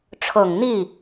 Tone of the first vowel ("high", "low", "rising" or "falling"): low